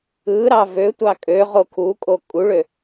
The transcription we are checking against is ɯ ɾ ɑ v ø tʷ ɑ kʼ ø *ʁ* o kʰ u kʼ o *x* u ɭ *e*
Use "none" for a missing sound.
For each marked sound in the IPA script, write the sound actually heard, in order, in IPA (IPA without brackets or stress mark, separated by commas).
ʁ, kʼ, ø